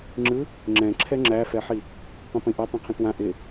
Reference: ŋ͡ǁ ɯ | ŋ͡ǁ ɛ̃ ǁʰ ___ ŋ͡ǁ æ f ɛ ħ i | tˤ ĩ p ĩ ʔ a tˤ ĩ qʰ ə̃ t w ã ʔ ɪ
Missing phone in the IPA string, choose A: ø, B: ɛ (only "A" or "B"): B